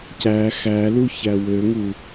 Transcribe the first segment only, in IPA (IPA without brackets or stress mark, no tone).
c